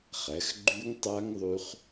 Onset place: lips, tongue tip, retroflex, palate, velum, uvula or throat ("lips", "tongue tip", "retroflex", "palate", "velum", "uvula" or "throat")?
uvula